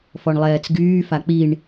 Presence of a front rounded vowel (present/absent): present